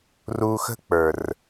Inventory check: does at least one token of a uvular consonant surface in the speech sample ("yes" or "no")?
no